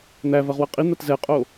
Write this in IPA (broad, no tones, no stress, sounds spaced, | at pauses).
n̪ æ v ɐ ʁ w ɐ qʼ i n̪ a t z ɛ qʼ o